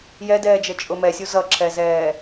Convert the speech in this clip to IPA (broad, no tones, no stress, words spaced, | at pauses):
jɛdɛːd͡ʒə t͡ʃʼʊmɛsʲu zʌǁʰɛzɛː